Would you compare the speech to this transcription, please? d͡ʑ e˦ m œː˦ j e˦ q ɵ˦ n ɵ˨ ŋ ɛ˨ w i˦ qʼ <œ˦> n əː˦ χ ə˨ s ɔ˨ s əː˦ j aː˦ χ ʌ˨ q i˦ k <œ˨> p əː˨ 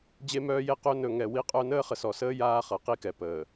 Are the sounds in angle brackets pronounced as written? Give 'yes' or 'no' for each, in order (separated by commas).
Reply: yes, no